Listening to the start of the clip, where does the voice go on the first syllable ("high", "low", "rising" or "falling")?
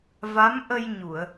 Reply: rising